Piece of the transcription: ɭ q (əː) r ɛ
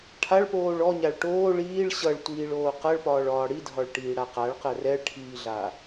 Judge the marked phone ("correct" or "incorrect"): incorrect